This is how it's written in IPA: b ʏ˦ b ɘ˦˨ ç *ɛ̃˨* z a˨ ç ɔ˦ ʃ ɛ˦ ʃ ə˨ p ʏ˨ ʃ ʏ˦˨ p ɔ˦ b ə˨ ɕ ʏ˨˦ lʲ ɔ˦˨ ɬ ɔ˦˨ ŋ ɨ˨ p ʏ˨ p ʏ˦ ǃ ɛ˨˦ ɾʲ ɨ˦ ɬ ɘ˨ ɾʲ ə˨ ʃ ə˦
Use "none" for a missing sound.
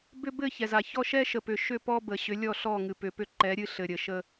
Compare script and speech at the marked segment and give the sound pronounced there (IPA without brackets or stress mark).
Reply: ɛ˨